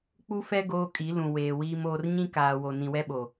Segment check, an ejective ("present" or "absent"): present